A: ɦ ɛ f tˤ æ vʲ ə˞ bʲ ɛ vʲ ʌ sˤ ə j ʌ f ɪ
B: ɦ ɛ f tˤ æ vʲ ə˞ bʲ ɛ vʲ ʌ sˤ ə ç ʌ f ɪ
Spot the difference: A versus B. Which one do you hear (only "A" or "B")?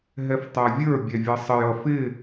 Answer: A